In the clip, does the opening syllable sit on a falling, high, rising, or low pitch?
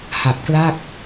low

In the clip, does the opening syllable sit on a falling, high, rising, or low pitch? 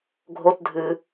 high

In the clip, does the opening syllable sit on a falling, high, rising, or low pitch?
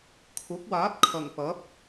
rising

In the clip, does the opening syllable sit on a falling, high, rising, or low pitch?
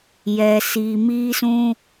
low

